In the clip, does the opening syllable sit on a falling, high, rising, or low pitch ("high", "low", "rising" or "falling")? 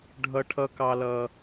low